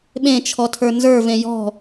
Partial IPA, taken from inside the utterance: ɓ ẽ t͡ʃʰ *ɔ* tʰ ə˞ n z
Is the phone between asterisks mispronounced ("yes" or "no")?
no